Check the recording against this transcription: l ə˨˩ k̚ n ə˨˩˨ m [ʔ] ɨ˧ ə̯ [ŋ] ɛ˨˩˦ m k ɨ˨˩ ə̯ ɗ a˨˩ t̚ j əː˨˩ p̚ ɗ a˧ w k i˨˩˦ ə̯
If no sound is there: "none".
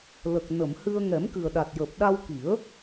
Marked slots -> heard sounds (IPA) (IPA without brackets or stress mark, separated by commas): h, ŋ